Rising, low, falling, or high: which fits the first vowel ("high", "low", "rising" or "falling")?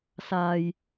low